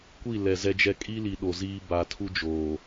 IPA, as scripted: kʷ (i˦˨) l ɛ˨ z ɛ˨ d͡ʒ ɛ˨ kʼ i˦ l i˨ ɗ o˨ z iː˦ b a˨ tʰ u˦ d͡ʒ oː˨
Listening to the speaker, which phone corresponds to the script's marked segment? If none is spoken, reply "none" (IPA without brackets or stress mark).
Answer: i˦˨